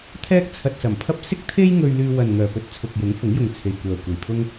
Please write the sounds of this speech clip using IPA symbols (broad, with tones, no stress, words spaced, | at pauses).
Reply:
t̪ʰɛː˥k̚t͡sʰɐ˧t̚sɐ˨˩mpʰɐ˥p̚ sɪ˥k̚t̪ʰe˥jŋɵ˧ɥ lyː˧ wɐ˨nŋœː˨˩pɵ˧t̚ t͡sʰʊ˨k̚jʊ˨˥ŋ fʊ˨˥ŋjʊ˨ŋ t͡sʰe˨jkʷœː˨kʷe˨˩jpʰʊ˥ŋ